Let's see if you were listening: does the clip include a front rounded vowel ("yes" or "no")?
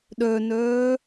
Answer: yes